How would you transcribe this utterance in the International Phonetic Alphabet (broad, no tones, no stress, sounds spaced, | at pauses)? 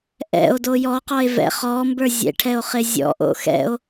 ʔ ɛ̰ o̯ d o j ɔ q ɔ e̯ v ɛ̰ χ ɔ m b ə˞ zʲ ɛ̰ ʈʰ ɛ o̯ χ ɪ zʲ ɔ̰ ʔ o̰ x ɛ̰ o̯